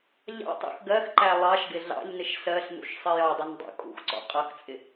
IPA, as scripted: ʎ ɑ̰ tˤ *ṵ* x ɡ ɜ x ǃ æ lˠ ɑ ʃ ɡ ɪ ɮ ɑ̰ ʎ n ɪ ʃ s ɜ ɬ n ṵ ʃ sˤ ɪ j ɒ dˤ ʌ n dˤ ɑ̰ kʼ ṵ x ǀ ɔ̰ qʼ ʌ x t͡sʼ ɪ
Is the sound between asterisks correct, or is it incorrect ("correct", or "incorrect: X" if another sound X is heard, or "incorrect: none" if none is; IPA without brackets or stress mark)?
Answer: correct